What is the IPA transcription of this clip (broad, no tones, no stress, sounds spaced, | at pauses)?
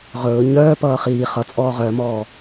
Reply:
ʁ ɵː ɲ œː p ʌː χ iː χ ʌ t͡sʼ ɔː ʁ œ m ɔː